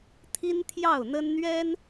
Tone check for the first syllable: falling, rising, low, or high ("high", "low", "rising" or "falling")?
high